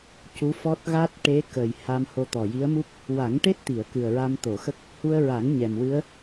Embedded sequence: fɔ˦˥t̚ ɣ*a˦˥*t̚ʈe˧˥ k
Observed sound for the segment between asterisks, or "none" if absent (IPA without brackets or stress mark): a˦˥